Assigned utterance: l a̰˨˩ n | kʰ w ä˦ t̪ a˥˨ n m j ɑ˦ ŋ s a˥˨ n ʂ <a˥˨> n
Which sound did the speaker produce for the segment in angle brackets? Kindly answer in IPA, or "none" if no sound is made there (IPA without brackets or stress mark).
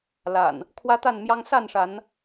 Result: a˨˦